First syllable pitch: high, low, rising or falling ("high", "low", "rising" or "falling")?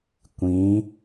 rising